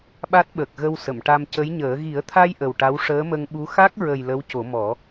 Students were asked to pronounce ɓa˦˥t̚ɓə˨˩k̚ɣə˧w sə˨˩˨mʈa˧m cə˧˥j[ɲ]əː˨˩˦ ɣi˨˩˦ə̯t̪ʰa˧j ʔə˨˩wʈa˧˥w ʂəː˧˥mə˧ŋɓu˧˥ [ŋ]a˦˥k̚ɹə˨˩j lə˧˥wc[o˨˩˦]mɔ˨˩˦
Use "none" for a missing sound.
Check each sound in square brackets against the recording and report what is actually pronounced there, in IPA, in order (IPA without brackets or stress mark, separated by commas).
ɲ, x, o˨˩˦